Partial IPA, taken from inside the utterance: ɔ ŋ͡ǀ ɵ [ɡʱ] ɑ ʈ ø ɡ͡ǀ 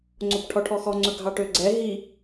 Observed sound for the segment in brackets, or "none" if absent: ɡʱ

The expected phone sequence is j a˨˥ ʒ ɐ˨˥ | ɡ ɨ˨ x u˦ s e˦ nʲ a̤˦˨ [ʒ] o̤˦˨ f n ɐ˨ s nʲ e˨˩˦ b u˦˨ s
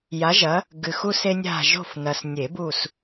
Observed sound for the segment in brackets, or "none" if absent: ʒ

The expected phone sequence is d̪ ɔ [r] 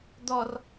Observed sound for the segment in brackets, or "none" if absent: r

